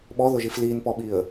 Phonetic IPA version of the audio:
ɓ ɔ ð ʊ ʒ i f l iː n p ɔ ɓ i ə̯

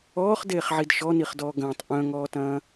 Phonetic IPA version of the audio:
ɔː χ d eː χ ʕ i d ʃ ɔ n i χ d ɔː ɡ ɐ̃ː tˤ ʔ œ̃ ŋ ɔː t ɐ̃ː

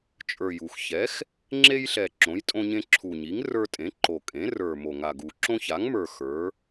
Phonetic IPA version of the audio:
t͡ʃʼ ə˞˨˩ j u˨˩ x ç ɛ˩˥ x | ŋ͡ǁ e˦ j ɬ ɛ˨˩ ǁ õ˩˥ j tʼ õ˦ ɲ ẽ˦ ǁʰ u˨˩ ɲ i˩˥ ŋ r ə˞˦ tʼ ẽ˩˥ ǃ o˨˩ kʼ ẽ˩˥ r ə˞˨˩ m o˨˩ ŋ a˨˩ ɡ u˨˩ ǁ õ˦ ç a˩˥ ŋ m ə˞˨˩ x ə˞˩˥

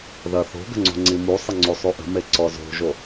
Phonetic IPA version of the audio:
ð ɐ θ o̤ ɡ ə̤ ŋ͡ǀ ṳ ŋ͡ǀ i m u sˤ ə ŋ͡ǀ u sˤ u ʔ ə̤ m e ǀ ɔ z o̤ ʒ o

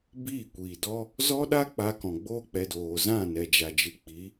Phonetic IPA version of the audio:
b iː˦˨ kʷ iː˨ d ɔ˦ | z ɔ˦ ɗ a˦ k͡p a˧ k ɔ̃˨ ɡ͡b oː˦ k͡p ɛ˧ d oː˨ z ã˦˨ n ɛ˨ d͡ʒ a˨ d͡ʒ ɨ˨ k͡p i˨˦

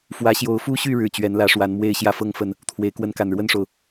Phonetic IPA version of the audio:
f w ä˨˦ ɕ j o˨˦ ʊ̯ f u˦ ɕ y˥˨ ɻ ɻ̩˥˨ t͡ɕ ɥ ɛ˨˦ n l ä˨˦ ʂ w a˨˦ n m w e˥˨ ɪ̯ ɕ j ä˥˨ f ɤ˥˨ ŋ f ə˥˨ n | t̪ʰ w e˨˦ ɪ̯ k w ə˦ n k a˨˩ n ɻ w ə˥˨ n ʂ o˩ ʊ̯

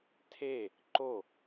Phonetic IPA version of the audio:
tʰ e | ǃ o

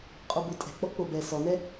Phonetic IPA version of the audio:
qʼ o b o tʼ ɛ̤ k͡p ɔ k͡p o b ɛ s ɔ n ɛ

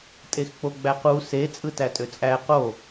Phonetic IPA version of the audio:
tʼ e x k͡p o ɡ͡b æ q u s e t͡sʼ ɯ t æ tʼ ø t͡sʼ æ q o

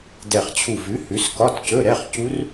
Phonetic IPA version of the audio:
d ɛ˧˩ χ t͡ɕʰ u˧˩ v ʉ˨˥ h ʉ˨˥ s k ɒ˧˥˧ t c ɵ˧˥˧ ɾ ɛ˧˥˧ χ c u˦˥ r

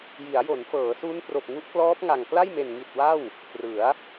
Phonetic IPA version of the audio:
j i˩˦ a̯ j o˩˦ n f ɤː˩˦ s u˦˥ n p r o˨˩ k̚ ŋ u˦˥ ʔ k l ɔː˦˥ p̚ ŋ a˨˩ ŋ k l a˥˩ j m e˨˩ n ŋ i˨˩ t̚ w a˥˩ w | p r ɯ˩˦ a̯

